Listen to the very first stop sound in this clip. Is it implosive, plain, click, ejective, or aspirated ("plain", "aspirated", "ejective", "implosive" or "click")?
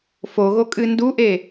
ejective